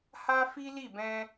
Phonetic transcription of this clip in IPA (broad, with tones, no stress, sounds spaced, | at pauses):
h a˦ f i˦ l i˦˨ b ɛ̃˧